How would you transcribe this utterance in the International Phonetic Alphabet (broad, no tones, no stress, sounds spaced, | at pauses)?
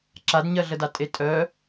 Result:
ǁ a d ɲ ɜ ɮ ə d a tʼ e tʼ œ